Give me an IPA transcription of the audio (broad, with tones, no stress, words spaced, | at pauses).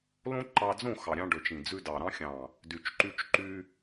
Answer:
lõ˦ǃɑ˧d͡zõ˦˨ xɑ˨ɾʲɑ̃˧ɖɵ˨t͡ʃ ĩ˨d͡zʉ˧dɑ˨ ɾɑ̃˧xʲɑ̃˨ | dy˨t͡ʃǃy˧t͡ʃǃy˧